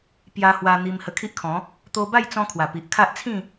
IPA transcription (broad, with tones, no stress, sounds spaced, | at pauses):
p j a˧ h w a˧ n̪ i˧ m h ə˧ kʰ i˦ ʔ kʰ ɔ̃˨˦ | t̪ o˧ b a˥˧ j t͡s ɔ̃˧ kʰ w a˨˩ p i˨ ʔ kʰ a˦ ʔ t͡sʰ ĩ˥˧